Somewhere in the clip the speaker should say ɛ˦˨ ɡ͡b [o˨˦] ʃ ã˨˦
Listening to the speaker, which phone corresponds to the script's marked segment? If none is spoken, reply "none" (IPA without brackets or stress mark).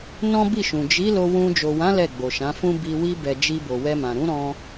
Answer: o˨